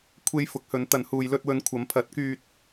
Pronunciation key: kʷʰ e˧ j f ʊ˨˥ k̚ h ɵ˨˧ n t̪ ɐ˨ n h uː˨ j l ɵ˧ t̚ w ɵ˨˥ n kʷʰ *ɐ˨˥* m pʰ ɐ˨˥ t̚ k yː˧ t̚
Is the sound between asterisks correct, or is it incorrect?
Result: correct